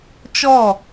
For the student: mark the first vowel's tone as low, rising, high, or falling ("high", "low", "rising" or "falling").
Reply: falling